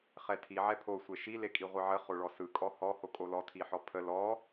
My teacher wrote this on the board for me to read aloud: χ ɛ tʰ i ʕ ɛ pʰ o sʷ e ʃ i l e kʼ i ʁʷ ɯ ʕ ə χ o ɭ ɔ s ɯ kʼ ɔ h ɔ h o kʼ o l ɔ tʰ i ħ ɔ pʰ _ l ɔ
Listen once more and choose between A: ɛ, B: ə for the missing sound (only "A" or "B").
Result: B